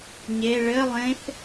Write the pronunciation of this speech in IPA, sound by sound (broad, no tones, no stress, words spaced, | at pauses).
ɲe ɭɘ lˠẽθ